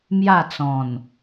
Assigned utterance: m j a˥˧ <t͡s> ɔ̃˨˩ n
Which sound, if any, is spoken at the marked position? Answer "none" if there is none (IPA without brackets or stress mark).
t͡s